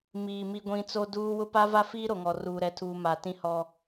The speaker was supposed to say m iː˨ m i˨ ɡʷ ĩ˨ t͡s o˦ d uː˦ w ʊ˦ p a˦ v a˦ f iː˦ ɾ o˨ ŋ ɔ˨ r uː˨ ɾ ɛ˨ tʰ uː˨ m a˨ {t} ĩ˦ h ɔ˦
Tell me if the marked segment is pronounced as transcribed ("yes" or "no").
yes